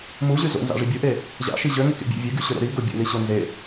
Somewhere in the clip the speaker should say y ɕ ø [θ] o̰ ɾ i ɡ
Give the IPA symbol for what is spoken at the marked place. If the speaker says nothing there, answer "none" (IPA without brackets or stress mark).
ɾ